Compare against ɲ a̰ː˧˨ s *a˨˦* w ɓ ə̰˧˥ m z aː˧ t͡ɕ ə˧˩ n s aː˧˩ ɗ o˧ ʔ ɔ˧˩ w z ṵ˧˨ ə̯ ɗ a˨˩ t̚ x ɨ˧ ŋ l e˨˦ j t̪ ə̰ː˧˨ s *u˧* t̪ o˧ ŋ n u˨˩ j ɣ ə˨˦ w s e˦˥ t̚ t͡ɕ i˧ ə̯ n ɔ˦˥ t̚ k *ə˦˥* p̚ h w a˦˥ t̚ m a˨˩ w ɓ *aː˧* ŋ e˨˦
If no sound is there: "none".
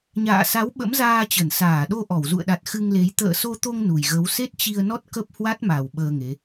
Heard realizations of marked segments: a˨˦, o˧, ə˦˥, əː˧

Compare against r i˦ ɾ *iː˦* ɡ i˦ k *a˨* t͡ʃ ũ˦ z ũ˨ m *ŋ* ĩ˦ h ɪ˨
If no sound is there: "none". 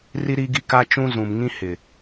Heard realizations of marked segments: iː˦, a˦, ŋ

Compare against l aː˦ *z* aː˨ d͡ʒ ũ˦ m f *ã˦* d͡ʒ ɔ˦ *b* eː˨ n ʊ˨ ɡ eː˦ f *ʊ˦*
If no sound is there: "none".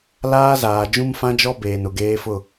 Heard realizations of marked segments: z, ã˦, b, ʊ˦˨

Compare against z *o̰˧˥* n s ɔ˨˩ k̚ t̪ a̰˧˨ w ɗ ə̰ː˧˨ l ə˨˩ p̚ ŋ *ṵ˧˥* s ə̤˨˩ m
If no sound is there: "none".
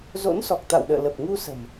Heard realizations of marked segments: o̰˧˥, u˧

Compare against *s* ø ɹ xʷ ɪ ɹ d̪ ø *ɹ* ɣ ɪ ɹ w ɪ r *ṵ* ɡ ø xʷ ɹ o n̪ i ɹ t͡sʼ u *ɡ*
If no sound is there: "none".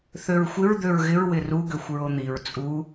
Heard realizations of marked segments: θ, ɹ, u, none

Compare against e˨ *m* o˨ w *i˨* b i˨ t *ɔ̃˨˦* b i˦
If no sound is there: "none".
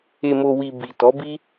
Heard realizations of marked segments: m, i˨, ɔ˨˦

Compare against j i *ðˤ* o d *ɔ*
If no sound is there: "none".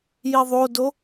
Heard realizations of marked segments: ðˤ, o

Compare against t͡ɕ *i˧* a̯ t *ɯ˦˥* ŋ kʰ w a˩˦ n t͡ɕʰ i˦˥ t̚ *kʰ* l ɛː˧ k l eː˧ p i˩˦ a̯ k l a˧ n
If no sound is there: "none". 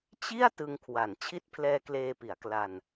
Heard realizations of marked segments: i˥˩, ɯ˧, pʰ

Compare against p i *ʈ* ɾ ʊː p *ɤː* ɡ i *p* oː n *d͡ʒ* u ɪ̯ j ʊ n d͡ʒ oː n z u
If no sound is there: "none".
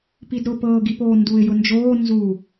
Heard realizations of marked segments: d, ɤː, p, d

